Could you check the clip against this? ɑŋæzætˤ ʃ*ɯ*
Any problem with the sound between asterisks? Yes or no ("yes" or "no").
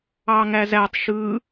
no